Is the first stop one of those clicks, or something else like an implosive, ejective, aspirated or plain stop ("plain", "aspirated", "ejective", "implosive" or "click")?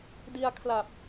plain